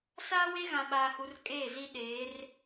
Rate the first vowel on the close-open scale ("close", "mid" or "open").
open